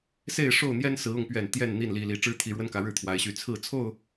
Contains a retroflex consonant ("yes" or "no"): yes